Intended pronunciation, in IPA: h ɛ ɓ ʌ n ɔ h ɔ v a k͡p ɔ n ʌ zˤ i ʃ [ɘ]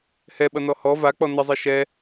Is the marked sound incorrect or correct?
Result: incorrect